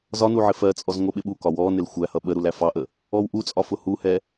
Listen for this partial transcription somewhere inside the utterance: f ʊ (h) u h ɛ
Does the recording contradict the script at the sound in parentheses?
no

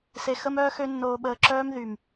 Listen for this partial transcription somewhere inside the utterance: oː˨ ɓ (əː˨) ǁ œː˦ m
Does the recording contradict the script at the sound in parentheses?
no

